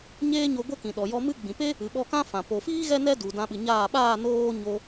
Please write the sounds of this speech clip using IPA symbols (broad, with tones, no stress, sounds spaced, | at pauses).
ɲ eː˦ ɲ o˧ ɡʷ ə˦ k ĩ˨ ɗ ɔ˨ j ɔ˧ m ɨ˦ ɡ͡b ĩ˨ p e˦ | ɨ˨ ɓ ɔ˧ k ã˦ f ã˨ p o˨ f iː˦ ɣ ɛ˦ n ɛ˦ d u˨ d ã˧ ɓ ɨ˨ ɲ aː˦˨ ɓ aː˦˨ n oː˦ ɲ o˧